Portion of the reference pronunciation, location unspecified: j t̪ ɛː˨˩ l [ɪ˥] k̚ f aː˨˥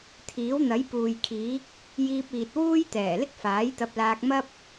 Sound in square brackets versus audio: correct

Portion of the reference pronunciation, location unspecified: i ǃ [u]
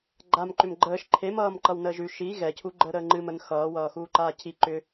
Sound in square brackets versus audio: incorrect: ʏ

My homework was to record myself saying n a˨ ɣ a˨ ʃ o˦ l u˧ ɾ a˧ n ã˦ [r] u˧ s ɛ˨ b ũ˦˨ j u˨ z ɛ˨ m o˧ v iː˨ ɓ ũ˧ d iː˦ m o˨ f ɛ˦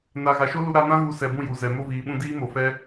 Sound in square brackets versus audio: incorrect: ɣ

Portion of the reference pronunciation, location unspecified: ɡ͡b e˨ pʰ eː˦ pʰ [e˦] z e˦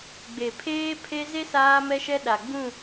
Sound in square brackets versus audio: correct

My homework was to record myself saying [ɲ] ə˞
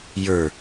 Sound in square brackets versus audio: incorrect: j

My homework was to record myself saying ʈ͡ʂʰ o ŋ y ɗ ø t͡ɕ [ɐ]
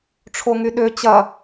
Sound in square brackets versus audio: correct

